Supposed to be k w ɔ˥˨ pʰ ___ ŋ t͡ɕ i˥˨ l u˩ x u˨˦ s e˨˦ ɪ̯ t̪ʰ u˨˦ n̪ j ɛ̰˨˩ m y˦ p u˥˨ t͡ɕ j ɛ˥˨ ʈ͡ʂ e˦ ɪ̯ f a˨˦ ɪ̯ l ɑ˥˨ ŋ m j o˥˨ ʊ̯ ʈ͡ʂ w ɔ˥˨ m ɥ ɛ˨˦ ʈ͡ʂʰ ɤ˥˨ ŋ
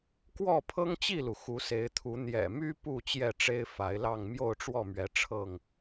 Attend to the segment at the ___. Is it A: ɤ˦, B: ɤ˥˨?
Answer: A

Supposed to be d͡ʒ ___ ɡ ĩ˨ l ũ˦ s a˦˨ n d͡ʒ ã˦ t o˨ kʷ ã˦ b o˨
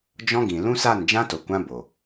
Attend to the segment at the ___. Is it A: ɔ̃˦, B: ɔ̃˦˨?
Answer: A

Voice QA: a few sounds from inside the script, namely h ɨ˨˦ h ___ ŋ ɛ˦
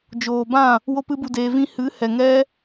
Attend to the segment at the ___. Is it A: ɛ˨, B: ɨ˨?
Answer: A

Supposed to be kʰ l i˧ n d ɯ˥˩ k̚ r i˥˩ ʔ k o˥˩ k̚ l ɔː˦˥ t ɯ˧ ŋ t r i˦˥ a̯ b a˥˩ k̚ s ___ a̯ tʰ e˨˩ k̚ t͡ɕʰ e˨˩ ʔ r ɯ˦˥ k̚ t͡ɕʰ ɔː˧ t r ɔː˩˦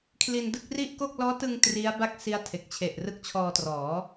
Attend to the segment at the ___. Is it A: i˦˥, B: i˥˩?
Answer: A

